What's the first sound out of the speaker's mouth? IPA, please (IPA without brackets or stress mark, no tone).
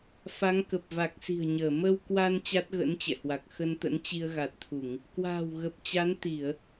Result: f